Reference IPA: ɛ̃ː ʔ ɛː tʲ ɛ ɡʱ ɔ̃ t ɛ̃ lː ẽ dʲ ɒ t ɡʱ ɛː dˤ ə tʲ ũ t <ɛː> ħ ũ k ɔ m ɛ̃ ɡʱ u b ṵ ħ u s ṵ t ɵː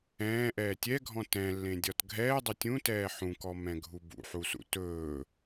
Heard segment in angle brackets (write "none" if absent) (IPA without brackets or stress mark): ɛː